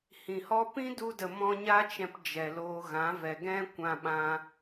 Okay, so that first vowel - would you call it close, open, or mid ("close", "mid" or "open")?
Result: close